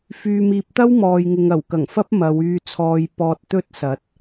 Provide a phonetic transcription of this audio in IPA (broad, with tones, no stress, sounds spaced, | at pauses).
f yː˨ m iː˨ p̚ t̪ ɐ˥ w m ɔː˨ j ŋ ɪ˨ ŋ ɐ˨˩ w k ɐ˨˩ ŋ f ɐ˥ p̚ m ɐ˨˧ w yː˧ t͡sʰ ɔː˧ j p ɔː˧ t̚ t̪ ɵ˥ t̚ s ɐ˨˥ t̚